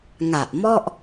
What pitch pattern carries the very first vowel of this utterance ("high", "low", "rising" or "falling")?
low